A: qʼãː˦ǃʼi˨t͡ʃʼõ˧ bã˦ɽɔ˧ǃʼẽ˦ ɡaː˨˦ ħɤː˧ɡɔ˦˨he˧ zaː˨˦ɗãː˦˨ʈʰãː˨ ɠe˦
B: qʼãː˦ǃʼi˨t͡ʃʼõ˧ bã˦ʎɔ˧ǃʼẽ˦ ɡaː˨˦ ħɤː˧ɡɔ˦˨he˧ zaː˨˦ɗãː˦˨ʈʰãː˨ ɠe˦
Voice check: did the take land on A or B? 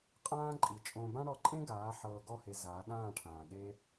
A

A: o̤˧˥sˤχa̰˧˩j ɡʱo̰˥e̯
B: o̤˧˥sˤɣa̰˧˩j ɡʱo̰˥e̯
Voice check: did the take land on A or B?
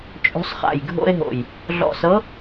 A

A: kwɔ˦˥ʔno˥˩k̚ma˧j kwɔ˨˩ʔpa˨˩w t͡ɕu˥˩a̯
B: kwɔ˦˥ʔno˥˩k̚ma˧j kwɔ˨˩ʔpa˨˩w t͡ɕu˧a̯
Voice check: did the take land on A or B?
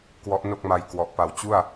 A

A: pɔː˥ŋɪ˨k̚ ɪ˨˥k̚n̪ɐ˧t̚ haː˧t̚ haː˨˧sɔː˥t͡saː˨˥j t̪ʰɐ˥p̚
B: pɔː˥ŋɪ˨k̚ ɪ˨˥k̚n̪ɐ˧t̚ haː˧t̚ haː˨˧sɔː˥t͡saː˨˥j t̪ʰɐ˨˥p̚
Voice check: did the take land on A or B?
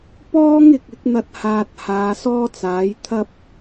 A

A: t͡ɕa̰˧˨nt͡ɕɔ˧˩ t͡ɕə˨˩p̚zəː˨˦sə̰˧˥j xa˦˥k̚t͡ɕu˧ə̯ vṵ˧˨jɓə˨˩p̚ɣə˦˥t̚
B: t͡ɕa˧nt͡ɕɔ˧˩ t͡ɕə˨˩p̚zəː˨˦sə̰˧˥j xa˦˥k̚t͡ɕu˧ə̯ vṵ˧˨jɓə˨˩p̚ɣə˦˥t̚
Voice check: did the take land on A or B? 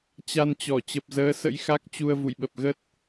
B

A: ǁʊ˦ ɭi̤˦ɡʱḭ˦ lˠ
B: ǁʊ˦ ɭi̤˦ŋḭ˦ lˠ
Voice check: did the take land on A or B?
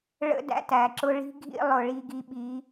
A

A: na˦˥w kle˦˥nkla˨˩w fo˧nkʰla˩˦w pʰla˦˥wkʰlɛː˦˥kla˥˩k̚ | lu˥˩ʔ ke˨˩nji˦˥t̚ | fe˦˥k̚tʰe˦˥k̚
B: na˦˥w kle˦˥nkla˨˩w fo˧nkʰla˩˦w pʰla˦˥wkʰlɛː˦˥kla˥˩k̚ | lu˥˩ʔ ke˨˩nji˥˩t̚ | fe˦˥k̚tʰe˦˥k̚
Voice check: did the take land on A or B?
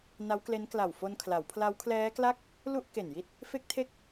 B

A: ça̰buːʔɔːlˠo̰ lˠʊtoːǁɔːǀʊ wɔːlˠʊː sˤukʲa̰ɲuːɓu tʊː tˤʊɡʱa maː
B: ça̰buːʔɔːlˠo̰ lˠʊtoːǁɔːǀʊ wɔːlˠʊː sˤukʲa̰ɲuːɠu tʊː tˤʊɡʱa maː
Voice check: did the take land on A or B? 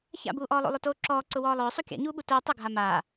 A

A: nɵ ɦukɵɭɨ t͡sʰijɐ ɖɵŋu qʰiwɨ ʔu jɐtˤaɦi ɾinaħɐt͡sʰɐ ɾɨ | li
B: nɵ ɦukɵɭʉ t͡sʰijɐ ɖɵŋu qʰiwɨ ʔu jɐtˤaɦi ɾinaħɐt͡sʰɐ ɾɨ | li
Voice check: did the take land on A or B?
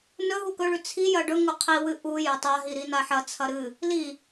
B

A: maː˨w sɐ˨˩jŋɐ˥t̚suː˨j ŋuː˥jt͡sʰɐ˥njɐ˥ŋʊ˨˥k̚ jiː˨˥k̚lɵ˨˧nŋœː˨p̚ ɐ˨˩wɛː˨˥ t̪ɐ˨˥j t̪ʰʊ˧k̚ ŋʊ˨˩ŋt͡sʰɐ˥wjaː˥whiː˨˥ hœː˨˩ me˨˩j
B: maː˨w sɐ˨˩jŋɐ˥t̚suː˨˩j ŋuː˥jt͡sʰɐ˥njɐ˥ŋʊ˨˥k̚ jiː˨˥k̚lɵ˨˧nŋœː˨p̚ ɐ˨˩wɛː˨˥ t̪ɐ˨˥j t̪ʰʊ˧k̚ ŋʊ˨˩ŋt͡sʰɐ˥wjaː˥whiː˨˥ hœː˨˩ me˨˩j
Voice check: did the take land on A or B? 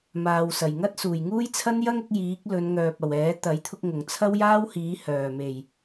B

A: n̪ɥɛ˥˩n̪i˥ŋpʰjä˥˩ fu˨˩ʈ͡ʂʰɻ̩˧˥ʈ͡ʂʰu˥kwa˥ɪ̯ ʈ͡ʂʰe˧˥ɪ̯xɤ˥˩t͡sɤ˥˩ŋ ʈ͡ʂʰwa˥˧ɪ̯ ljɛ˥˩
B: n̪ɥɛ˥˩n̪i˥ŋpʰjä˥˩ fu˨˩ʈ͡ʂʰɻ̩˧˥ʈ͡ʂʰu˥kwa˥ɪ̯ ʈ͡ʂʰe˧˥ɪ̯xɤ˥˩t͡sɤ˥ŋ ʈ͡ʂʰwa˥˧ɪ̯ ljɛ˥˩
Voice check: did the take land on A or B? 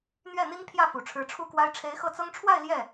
B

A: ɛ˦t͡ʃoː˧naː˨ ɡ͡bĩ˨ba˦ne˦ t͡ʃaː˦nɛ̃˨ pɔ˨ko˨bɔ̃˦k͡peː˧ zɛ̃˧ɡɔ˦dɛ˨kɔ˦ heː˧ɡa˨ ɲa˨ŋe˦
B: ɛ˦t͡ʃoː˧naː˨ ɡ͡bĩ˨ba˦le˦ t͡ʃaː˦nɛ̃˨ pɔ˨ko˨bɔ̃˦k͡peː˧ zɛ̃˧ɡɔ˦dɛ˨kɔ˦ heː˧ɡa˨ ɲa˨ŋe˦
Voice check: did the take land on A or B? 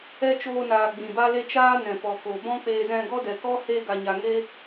B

